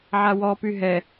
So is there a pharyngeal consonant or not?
yes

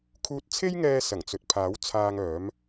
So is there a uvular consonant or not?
no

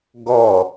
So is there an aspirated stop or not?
no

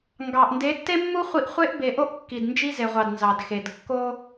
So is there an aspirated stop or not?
no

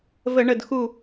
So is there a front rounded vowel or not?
no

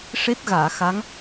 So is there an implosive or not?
no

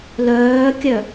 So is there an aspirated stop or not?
no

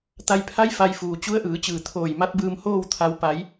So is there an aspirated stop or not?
yes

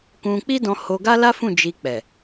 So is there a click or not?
no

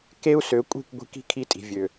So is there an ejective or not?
yes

